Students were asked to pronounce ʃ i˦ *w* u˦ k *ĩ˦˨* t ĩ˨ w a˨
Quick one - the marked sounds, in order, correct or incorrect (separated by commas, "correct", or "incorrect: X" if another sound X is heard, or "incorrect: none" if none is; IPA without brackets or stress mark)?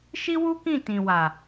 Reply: correct, correct